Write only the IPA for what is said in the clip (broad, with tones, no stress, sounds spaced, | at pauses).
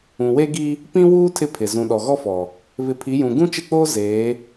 ũ˨ w e˦ ɡ i˦ | p ĩ˦ w uː˦ tʰ ɪ˦ pʰ ɪ˨ z ũ˨ ɗ ɔ˨ ɣ ɔ˦ f ɔ˨ | β ɪ˨˦ pʰ i˨˦ j ũ˨ ɡ ũ˦ t͡ʃ ɪ˦˨ k͡p oː˦ z eː˨˦